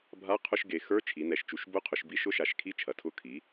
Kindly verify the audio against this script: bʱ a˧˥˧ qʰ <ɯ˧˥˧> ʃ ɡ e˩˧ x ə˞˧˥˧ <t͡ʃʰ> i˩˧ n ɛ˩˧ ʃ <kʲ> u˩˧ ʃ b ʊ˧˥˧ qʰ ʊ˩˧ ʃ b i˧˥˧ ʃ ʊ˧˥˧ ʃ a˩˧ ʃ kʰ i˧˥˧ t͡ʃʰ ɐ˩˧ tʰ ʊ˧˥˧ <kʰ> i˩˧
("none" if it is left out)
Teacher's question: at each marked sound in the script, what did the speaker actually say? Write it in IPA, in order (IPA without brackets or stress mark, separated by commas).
ʊ˧˥˧, t͡ʃʰ, t͡ʃ, kʰ